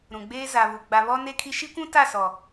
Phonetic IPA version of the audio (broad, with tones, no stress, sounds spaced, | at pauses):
ɾ ũ˨ ɡ͡b eː˦ z a˨ β u˨ ɡ͡b a˨ β ɔ˦ n e˦ kʰ i˦ ʃ i˦ kʷ ũ˦ t a˦˨ s ɔ˨